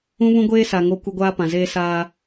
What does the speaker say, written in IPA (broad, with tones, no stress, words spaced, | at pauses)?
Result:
ũ˦βũ˦ɡʷeː˦sa˨ ŋo˦kʷɪ˦ ɡʷaː˦pã˨zeː˦ saː˦